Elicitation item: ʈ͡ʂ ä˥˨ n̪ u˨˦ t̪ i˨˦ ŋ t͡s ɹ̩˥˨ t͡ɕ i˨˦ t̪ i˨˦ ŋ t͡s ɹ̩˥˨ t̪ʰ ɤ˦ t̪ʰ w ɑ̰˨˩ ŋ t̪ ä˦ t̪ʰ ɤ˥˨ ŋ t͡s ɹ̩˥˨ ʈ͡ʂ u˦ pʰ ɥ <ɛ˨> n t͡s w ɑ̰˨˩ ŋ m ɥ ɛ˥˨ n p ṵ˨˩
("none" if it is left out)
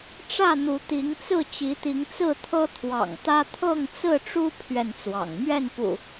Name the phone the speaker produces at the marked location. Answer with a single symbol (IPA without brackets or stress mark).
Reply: ɛ˨